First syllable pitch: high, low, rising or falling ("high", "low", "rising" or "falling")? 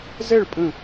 falling